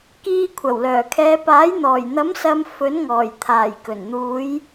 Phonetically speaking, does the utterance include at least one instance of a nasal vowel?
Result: no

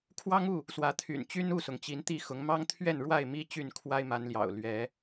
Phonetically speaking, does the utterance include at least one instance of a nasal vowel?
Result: no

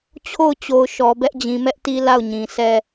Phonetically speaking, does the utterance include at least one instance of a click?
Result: no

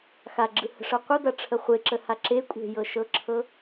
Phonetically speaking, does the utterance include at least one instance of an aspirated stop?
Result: yes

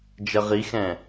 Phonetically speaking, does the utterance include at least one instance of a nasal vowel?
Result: yes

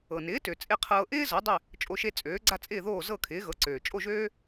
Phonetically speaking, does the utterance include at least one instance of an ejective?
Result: yes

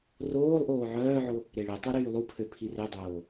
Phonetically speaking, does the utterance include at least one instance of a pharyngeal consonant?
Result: yes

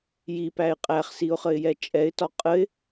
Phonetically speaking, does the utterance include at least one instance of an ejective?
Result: yes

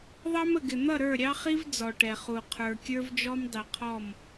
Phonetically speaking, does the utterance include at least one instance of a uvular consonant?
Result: yes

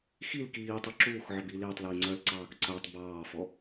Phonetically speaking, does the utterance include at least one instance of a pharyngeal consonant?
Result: yes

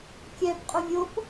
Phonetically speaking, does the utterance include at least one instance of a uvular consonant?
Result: yes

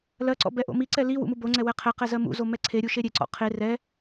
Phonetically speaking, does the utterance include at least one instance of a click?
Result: yes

